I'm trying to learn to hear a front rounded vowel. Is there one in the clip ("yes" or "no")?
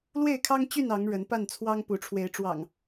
yes